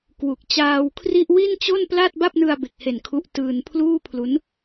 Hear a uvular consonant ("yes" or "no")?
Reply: no